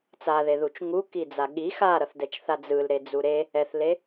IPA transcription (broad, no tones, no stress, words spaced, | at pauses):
t͡saðeðut͡ʃ ŋukid͡za ɠi xaɾʌθdɛt͡ʃθa d͡zɯlɾed͡zu ɾe | ɛθle